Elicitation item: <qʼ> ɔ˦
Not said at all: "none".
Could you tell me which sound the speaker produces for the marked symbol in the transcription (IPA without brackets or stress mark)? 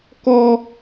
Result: k